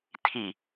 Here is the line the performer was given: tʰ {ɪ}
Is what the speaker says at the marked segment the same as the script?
no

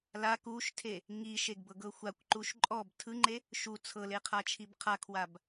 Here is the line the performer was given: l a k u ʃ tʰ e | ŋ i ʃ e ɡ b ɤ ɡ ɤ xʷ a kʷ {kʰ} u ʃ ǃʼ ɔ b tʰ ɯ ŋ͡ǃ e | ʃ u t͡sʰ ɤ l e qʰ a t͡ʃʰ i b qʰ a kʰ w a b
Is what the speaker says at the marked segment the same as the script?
no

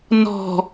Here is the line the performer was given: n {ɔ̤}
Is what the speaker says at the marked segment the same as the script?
yes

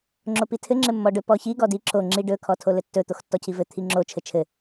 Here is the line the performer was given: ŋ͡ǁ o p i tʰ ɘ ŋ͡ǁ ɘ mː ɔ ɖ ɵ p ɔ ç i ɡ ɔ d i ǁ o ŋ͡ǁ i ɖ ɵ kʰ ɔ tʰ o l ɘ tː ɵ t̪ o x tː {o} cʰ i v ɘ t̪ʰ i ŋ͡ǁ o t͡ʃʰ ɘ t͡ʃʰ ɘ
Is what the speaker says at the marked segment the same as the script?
no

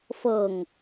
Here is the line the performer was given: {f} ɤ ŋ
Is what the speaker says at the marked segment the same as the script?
yes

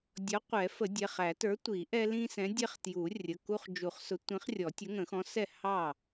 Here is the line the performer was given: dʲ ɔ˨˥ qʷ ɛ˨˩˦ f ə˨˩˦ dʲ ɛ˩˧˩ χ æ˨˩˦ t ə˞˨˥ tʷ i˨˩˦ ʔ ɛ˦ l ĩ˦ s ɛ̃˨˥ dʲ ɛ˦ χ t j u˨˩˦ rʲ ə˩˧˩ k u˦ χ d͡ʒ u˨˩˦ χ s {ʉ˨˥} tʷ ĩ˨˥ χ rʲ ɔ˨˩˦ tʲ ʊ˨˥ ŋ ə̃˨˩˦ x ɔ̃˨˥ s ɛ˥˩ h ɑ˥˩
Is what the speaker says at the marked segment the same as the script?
no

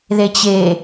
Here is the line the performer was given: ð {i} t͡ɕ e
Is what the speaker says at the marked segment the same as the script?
no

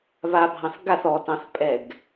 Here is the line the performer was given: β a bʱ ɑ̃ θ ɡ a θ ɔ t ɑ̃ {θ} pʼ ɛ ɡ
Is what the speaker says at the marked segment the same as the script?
yes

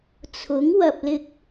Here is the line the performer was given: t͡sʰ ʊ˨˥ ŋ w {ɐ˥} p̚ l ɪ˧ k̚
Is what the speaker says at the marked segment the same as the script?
no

